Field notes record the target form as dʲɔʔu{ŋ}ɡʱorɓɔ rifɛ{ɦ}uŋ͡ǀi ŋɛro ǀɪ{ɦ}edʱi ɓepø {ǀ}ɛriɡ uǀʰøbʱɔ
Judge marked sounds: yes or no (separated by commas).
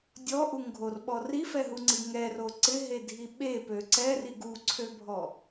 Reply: yes, yes, yes, yes